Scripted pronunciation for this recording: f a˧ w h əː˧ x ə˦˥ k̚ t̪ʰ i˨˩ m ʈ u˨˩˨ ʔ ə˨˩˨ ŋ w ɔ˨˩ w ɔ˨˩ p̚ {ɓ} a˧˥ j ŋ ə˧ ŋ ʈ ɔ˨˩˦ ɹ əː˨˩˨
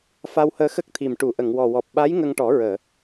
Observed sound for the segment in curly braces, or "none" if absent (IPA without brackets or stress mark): ɓ